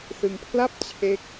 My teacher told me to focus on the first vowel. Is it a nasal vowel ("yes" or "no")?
no